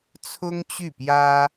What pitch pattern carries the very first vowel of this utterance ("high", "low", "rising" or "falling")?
high